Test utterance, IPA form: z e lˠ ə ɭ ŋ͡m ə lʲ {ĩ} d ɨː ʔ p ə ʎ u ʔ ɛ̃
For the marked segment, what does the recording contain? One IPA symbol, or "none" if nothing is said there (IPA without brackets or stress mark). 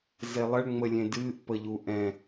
ẽ